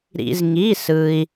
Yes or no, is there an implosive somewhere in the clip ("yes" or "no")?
no